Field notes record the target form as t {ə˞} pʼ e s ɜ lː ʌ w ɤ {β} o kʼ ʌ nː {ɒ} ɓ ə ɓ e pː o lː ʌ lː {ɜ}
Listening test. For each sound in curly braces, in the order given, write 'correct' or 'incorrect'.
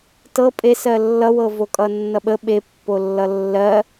incorrect, incorrect, incorrect, correct

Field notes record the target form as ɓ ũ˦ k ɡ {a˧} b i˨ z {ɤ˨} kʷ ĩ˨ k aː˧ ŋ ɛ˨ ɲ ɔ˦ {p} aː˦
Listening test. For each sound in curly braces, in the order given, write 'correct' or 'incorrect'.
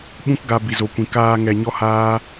correct, incorrect, incorrect

